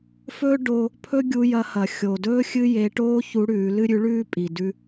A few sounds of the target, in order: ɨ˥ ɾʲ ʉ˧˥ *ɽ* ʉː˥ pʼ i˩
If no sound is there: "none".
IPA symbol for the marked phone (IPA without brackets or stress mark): ɭ